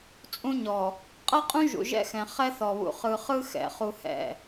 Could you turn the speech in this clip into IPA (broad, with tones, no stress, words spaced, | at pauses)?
t͡sʼũ˦ɲɔ˨ | qʼʌ˦qʼũ˦ ʒṵ˨ʒɛ̰˦xɛ̃˨ χɛ˦θɔ˨βṵ˨ χɯ˨χɯ˦ xɛ̰˨ χu˦hɛ̰˦˨